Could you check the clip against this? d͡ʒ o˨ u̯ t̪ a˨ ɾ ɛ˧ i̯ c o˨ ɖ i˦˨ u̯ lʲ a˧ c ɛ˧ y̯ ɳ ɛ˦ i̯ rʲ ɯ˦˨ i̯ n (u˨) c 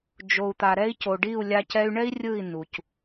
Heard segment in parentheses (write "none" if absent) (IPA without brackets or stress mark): u˨